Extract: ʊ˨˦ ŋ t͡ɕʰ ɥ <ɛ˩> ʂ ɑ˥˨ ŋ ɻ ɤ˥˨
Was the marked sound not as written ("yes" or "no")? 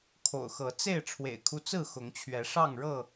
yes